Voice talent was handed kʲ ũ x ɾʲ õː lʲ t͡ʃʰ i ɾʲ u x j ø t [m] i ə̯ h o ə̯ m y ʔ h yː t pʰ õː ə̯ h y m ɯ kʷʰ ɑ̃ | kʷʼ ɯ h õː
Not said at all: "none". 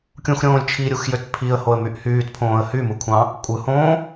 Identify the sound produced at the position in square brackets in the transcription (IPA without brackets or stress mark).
pʰ